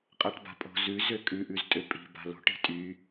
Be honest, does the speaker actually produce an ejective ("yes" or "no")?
yes